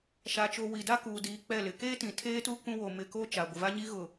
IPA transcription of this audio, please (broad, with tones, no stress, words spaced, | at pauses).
ʃa˨t͡ʃo˨ wi˨da˦kuː˨diː˨ k͡pɛ˦˨lɪ˨ keː˦tĩ˨ tʰeː˦tu˦ kũ˦wo˨ mɪ˨ko˦ t͡ʃa˨ ɡʷɪ˨va˦ɲi˦ ɣʊ˨